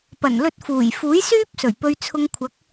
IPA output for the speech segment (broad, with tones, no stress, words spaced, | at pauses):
pɐ˨˩nlɵ˧t̚fuː˨˩jfuː˨˥j syː˥p̚ sɵ˨˩ɥpɵ˧ɥt͡sʰʊ˧ŋ kʷʰɐ˨˥k̚